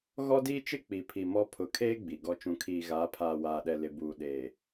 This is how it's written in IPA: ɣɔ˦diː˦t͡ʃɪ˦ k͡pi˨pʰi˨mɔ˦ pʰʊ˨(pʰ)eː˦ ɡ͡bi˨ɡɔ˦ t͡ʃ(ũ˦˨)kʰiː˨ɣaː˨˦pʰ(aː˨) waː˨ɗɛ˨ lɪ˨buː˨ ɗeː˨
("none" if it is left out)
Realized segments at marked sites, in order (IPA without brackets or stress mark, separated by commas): kʰ, ũ˨, aː˨